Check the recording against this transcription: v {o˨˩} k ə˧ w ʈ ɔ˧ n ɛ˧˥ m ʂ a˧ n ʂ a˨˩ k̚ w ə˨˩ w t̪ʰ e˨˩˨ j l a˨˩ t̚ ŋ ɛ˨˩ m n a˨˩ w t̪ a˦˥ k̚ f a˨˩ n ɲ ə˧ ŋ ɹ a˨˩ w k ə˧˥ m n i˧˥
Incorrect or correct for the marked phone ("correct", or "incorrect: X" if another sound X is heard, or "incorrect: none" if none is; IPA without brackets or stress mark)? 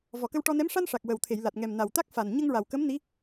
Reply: incorrect: ɔ˨˩